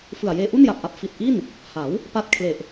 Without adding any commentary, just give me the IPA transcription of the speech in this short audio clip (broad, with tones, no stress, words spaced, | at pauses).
fɯ˨˩a̯jeː˧ ʔu˥˩nja˨˩p̚ʔa˨˩p̚ fi˨˩t̚ʔi˥˩n | ha˩˦w | pa˥˩t̚ kʰle˨˩ʔ